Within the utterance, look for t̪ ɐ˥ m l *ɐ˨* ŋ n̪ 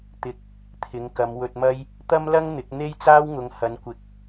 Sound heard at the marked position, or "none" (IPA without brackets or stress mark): ɐ˥